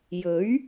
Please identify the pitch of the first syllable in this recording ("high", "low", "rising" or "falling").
rising